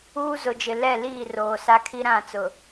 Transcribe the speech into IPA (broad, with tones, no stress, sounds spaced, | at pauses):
uː˦ z ʊ˨ d͡ʒ ɪ˨ l ɛ˦˨ l iː˦˨ r oː˨ s a˦ kʰ i˦ ɾ ã˦˨ t͡s ʊ˨